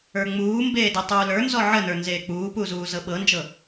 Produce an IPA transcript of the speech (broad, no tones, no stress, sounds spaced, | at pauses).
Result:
ə˞ ŋ͡m uː m b eː d ɛ tˤ uː l ə˞ n z ɔ ʕ ə n ə˞ n z eː k͡p uː p u z uː z ɤ ɓ ɤ n d͡ʒ ɤ